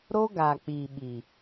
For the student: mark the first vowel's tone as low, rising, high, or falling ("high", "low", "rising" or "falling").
high